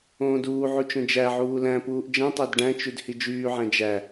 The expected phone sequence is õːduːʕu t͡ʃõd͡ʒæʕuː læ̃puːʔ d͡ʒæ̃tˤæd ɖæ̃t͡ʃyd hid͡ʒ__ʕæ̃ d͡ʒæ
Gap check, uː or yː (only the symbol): yː